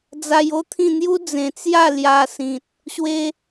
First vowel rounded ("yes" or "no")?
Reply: no